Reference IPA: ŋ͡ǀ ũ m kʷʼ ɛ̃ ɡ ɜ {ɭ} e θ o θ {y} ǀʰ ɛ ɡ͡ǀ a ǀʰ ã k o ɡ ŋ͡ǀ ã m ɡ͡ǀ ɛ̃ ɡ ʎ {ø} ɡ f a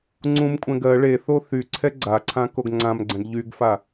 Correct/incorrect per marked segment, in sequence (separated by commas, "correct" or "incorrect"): correct, correct, incorrect